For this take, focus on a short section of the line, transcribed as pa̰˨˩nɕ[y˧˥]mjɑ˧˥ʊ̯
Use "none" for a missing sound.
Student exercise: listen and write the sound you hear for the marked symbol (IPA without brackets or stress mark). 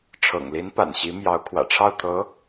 i˧˥